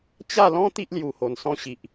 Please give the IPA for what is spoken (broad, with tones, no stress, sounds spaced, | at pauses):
t͡ɕ a˥˧ l ɔ̃˦ t̪ i˦ ʔ l j u˨˩ h o˨˩ n s ɔ̃˧ ɕ i˨ ʔ